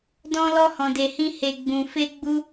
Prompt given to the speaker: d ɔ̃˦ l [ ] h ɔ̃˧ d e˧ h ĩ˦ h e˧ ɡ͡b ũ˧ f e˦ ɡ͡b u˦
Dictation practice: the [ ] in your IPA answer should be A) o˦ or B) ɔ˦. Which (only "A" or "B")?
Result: B